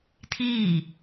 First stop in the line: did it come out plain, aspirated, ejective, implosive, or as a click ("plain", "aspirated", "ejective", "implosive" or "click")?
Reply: aspirated